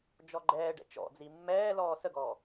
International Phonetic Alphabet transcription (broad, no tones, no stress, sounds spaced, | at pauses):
d͡ʒ ɔ ɡ͡ǃ ɛː ɖ ɛ̰ t͡ʃ ɔ̰ d͡z i mː ɛː l ɔː s ə ɡ ɔː